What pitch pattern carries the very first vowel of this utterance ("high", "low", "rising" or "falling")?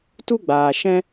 high